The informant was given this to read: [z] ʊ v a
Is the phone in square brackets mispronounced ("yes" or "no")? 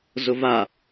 no